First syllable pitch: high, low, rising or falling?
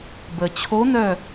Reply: low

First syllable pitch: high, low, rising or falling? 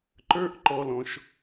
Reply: high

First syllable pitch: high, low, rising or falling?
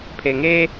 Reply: low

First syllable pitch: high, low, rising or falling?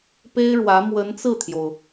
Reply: high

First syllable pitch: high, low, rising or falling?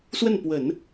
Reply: falling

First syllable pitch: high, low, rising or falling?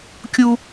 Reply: high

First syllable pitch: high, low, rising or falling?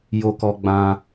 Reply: high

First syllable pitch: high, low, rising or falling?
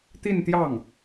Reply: falling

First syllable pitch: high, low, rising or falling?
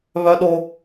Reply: high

